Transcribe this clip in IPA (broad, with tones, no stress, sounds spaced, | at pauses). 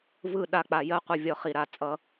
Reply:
v ɯ˦˨ ɗ a˧ k͡p a˨ j ɜ˦ qʷ ə˧ vʲ ɔ˧ χ i˨ ɾ a˨ t͡sʼ ʌ˧